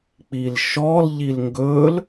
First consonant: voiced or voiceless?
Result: voiceless